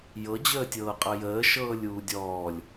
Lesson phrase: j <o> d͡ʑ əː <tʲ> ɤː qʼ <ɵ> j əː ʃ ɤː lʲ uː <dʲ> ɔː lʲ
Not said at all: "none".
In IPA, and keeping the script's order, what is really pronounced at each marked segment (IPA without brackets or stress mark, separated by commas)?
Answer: ɤ, tʲ, ɤ, dʲ